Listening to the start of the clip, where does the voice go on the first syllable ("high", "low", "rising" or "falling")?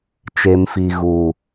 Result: low